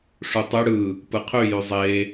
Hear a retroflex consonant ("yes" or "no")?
yes